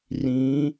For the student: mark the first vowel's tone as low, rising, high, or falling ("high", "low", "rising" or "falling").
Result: rising